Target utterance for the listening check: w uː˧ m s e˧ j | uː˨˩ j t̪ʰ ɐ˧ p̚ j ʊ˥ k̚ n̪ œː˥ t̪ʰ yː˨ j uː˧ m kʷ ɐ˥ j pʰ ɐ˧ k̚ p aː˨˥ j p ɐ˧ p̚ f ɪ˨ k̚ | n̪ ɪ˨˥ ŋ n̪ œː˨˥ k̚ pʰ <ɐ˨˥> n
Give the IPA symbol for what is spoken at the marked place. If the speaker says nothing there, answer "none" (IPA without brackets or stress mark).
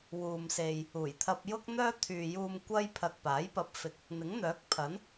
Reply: ɐ˨˥